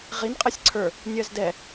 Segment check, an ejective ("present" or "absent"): present